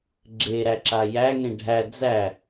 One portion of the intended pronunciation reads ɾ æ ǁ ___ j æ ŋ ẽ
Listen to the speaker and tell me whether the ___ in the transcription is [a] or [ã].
a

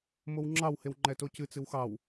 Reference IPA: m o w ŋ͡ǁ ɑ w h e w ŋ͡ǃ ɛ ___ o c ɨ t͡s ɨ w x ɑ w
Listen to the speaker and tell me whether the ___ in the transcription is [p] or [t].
t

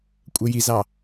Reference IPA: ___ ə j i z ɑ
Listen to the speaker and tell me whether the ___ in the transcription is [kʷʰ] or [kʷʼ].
kʷʼ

